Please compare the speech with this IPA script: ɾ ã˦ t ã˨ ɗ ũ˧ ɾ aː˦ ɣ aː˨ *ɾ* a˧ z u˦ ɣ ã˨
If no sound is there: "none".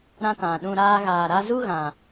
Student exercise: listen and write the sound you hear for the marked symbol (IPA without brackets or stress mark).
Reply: ɾ